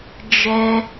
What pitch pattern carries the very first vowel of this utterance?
high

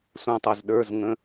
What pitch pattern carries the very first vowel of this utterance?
falling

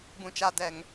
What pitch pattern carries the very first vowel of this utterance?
low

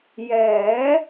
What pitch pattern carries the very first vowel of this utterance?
rising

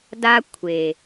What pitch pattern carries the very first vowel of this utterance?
high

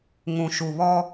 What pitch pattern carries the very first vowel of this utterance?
low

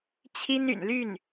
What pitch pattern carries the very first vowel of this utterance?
high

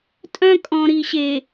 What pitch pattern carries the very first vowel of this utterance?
high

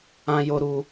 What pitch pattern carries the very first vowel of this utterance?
high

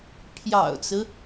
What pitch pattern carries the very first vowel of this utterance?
low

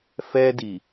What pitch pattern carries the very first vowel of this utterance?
high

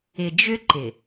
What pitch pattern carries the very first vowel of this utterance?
low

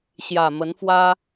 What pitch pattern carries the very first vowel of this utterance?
low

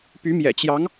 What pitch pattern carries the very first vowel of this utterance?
rising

